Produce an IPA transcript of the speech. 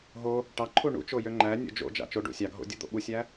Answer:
ɦ o | ʈ ɑ ǃʰ u ɳ ṵ t͡ʃ o j ø ŋ͡ǃ æ nʲ o̰ d͡ʒ o̰ d͡ʒ ɑ̰ t͡ʃ o ɖ ṵ sʲ ɑ ɡʱ o̰ dʲ u d̪ o̰ ɓ u sʲ æ

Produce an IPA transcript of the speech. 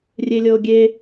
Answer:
rʲ e lʲ ɤ o̯ ɡʲ e

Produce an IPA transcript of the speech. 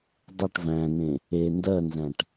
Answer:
dˤ ə ʈ v æ̃ n ẽ | e n d ɜ n z æ̃ ʈ

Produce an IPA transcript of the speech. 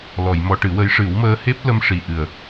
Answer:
l ɔ˨˩˨ j m ɔ˧ ʈ ɨ˨˩˦ w ə˧˥ j ʂ ɨ˨˩˦ w m əː˧ h e˦˥ p̚ l ə˧ m ʂ i˨˩ ʔ ɨ˨˩ ə̯

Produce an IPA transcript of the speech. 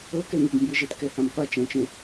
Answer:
ɤ k ɛ ŋ e ɡ m b ɯ ʒ e t k ɛ h ã m qʷ a t͡ʃ ɛ̃ t͡ʃ ẽ

